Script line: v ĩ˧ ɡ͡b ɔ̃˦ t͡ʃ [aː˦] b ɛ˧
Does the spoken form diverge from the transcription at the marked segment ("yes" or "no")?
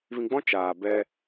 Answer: yes